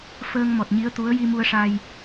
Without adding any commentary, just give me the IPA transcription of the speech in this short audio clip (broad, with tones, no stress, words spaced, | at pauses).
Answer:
fəː˧ŋ mɔ˨˩t̚ɲi˧˥ə̯ t̪u˧˥ə̯ji˧ mu˧ə̯ʂa˧j